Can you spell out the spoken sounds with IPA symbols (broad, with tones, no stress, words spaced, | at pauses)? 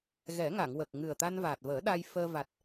ɣɛ˨˩˦ŋa˨˩˨ŋ wə˨˩k̚ ŋɨ˨˩ə̯t̪a˧nvaː˨˩t̚vəː˨˩˦ ɗa˧j fəː˧ va˨˩t̚